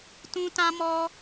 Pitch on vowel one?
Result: high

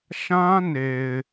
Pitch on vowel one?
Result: high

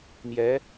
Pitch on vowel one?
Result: rising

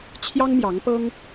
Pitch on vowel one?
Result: high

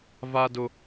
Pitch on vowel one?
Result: high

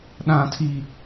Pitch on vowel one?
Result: high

